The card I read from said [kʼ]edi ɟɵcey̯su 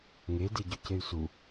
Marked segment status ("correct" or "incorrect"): incorrect